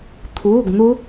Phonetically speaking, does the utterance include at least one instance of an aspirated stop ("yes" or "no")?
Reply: yes